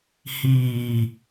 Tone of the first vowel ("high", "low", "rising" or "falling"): low